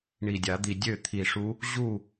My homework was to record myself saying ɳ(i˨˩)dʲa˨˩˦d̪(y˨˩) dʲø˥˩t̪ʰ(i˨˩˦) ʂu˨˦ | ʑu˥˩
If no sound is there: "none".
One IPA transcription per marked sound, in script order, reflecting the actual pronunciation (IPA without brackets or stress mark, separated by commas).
i˨˩, i˨˩, i˨˩